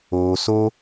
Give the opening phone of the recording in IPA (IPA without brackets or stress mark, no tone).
oː